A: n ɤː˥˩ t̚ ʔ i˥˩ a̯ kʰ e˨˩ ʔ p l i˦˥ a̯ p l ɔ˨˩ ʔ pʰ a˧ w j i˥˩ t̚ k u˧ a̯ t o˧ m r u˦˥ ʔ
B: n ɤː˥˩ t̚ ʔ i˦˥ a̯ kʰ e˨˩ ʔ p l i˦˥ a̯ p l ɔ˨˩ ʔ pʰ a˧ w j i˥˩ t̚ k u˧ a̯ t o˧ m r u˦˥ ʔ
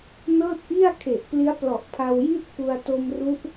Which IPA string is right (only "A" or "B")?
A